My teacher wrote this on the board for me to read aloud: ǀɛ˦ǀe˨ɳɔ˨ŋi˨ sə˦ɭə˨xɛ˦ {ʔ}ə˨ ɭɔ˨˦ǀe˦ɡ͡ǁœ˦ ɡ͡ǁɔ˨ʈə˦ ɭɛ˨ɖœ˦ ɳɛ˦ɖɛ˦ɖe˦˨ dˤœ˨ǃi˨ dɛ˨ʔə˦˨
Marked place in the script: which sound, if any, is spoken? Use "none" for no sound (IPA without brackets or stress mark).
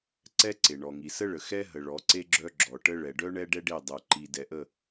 ɦ